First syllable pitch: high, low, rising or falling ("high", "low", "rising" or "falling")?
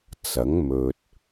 rising